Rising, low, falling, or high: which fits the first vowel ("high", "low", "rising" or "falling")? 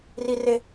high